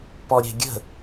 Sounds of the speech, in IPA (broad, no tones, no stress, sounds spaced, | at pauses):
p ɔ ɾʲ ɛ̤ ɡʲ ə̤